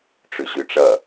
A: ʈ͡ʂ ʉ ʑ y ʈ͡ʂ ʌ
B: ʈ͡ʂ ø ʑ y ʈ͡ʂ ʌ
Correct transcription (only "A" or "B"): A